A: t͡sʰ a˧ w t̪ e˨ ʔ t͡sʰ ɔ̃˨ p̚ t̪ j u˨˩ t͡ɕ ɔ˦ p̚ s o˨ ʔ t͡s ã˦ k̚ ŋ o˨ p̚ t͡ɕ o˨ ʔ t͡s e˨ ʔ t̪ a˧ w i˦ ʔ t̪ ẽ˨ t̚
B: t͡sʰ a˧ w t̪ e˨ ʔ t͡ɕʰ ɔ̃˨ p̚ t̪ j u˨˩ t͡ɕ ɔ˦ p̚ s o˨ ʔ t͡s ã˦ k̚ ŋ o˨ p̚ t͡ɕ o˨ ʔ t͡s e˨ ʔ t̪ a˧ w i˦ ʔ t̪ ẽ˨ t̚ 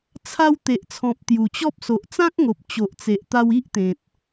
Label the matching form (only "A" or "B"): A